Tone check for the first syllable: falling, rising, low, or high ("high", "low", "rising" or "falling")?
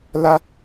high